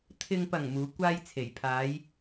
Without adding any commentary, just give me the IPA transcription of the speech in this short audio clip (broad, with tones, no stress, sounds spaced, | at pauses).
t̪ʰ ɪ˨ ŋ p ɐ˨˩ ŋ m uː˨˧ kʷ aː˥ j t͡sʰ e˨˩ j pʰ aː˨˧ j